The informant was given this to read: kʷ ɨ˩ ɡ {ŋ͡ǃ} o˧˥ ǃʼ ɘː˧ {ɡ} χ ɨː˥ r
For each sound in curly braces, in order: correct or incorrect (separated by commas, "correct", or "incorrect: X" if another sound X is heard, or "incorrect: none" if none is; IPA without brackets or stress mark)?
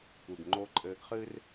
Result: correct, correct